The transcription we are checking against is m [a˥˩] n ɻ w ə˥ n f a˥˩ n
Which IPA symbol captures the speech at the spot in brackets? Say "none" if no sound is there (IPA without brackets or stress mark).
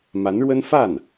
a˧˥